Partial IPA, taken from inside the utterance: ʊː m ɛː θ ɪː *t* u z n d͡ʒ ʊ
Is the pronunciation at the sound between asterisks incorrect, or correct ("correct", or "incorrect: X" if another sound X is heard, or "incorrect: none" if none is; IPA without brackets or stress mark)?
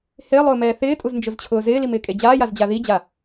incorrect: tʼ